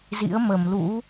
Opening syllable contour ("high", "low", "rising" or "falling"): rising